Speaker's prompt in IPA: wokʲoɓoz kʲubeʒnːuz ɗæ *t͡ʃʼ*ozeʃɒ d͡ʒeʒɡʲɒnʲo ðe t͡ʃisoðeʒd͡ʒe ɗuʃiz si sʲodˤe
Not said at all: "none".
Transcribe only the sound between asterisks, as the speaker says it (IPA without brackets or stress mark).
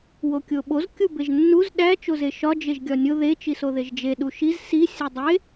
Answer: t͡ʃ